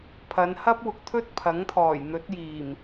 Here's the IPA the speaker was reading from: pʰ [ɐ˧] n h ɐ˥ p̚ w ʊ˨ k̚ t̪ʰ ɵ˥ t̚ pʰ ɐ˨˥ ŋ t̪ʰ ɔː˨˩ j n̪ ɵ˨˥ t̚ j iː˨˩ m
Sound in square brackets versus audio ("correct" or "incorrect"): incorrect